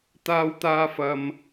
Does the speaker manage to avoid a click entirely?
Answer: yes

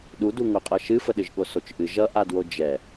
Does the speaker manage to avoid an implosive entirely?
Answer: no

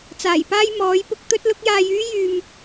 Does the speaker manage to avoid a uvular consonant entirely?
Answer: yes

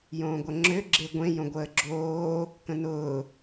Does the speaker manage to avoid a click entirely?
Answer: no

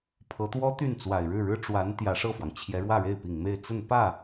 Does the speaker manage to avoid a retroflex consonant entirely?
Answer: no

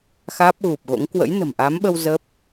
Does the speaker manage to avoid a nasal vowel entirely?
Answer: yes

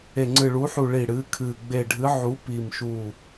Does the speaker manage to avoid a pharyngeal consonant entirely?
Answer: no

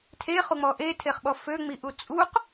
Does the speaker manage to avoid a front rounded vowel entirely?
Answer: no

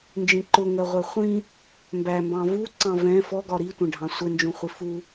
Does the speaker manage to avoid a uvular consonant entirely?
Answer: no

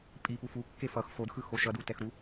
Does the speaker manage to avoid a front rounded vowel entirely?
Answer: yes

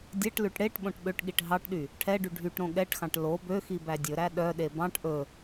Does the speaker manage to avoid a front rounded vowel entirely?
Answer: no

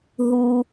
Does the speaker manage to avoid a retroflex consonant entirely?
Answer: yes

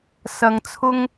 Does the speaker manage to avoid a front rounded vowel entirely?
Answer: yes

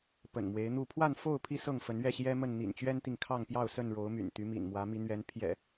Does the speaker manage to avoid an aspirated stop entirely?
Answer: no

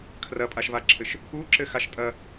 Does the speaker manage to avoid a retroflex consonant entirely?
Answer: yes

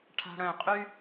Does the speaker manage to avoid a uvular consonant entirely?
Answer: no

